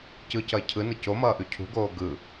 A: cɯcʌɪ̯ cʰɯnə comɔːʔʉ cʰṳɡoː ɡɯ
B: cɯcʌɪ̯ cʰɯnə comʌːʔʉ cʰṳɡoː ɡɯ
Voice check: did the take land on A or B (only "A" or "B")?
B